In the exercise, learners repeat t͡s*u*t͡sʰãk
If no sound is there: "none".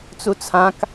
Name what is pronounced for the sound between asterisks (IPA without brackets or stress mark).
u